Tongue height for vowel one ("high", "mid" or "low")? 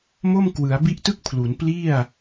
mid